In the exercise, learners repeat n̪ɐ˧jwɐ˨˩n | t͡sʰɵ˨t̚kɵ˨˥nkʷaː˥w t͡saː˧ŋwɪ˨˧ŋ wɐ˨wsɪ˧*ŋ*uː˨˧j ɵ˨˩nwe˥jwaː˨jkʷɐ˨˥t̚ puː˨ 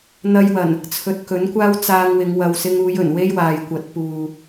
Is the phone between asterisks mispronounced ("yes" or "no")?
no